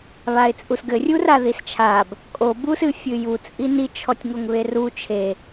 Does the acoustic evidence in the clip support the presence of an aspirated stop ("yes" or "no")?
yes